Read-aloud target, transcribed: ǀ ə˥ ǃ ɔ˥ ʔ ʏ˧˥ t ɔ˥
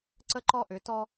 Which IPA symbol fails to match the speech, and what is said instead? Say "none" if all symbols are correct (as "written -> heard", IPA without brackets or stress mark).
none